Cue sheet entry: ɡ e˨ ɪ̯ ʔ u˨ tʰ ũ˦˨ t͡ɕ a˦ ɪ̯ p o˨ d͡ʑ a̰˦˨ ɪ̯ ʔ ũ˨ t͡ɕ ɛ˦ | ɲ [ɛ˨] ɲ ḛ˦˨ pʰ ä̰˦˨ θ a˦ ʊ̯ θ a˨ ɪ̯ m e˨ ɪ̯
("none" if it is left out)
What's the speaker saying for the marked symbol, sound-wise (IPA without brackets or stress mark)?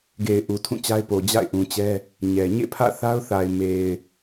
ɛ˨